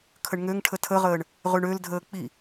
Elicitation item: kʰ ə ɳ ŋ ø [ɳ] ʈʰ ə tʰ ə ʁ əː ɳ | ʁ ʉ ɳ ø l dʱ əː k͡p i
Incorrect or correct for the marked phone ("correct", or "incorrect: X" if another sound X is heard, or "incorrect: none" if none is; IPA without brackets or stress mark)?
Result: incorrect: ŋ